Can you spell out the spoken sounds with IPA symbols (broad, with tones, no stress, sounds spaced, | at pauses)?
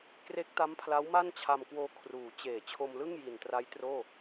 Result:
k r e˦˥ k̚ t a˦˥ m pʰ l a˦˥ w m a˥˩ n t͡ɕʰ a˧ m k w oː˧ kʰ r uː˩˦ t͡ɕ eː˨˩ t͡ɕʰ o˧ m l ɯ˥˩ ŋ j i˨˩ n t r a˦˥ j t r oː˥˩